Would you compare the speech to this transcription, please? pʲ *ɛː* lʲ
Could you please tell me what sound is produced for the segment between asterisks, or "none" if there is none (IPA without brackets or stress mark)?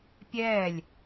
ɛː